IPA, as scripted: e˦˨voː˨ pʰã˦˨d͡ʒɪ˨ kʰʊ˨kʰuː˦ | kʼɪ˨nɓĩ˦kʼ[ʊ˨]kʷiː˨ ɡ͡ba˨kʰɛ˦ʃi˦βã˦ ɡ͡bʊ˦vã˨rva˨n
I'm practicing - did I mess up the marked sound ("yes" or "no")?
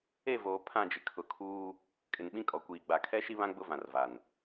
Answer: yes